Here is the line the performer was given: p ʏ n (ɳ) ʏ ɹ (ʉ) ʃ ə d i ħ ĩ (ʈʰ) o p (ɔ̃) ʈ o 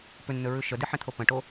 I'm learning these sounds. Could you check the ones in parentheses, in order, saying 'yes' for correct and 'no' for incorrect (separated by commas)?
no, yes, no, no